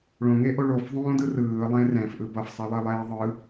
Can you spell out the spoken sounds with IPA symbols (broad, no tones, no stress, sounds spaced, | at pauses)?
ɭ õ ŋ e ʔ o ɭ o f ðˤ õː d ɯ r ɯː lˠ ẽ r ɛ̃ f ʔ ɯ b ʌ f sˤ ɛ lˠ e lˠ ɛː ðˤ ɯ